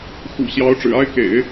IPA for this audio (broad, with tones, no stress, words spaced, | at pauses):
xṵ˨˩ɕjɑ˧˥ʊ̯ ʈ͡ʂɻ̩˨˩a˥ɪ̯kḛ˨˩˦ɪ̯